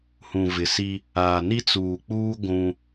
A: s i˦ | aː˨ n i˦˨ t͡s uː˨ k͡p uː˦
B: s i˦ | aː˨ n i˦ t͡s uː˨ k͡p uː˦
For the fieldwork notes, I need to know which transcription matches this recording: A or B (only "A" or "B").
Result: B